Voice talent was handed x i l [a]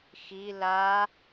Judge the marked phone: correct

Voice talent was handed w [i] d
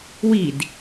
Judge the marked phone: correct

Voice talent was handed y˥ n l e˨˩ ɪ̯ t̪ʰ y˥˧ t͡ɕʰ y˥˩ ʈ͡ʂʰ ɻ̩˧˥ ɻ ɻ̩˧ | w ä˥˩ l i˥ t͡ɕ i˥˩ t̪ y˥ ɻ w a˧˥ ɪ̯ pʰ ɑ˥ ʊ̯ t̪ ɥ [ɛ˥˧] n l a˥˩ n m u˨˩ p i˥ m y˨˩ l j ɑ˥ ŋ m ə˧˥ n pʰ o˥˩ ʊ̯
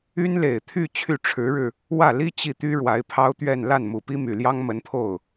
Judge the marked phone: correct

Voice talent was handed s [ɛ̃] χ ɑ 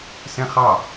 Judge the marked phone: correct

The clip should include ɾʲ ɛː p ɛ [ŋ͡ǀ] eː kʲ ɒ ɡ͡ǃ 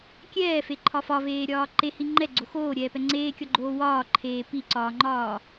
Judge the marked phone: correct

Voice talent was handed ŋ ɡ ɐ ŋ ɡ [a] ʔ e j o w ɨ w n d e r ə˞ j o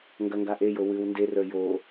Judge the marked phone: correct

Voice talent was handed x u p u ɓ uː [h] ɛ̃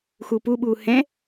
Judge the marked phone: correct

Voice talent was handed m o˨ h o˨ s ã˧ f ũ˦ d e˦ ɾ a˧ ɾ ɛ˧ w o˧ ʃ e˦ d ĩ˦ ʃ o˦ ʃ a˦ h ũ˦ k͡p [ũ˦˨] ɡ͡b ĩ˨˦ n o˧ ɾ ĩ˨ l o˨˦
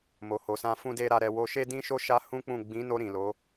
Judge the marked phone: correct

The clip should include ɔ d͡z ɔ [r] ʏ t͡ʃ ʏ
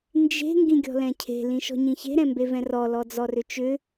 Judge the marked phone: correct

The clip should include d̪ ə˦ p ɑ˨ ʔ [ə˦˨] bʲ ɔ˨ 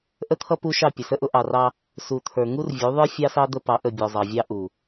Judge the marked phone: correct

